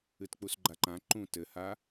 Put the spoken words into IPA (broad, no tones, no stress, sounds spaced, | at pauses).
ɨ t k͡p u s ɡ͡ǃ a ǃ ã ǃ ũ t ɘ h a